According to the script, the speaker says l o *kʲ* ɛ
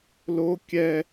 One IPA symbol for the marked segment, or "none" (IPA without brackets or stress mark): kʲ